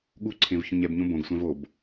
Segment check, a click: present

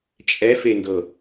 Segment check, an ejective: present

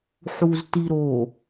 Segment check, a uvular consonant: absent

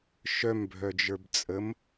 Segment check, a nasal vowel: absent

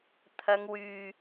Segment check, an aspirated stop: present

